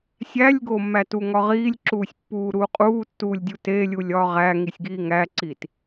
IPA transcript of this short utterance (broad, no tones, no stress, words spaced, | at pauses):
sʲælʲɡomːætu ŋɒʁiːlʲǁuːsʲpːuː ɾuːqʼuːtːuːlʲdʲu telʲulʲ ɒːʁæŋisʲɡiː ŋæǀit